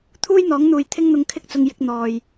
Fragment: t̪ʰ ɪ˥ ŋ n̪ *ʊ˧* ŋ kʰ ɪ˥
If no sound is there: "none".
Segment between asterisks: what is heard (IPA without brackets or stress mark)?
ʊ˧